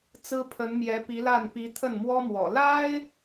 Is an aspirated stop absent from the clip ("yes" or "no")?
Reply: no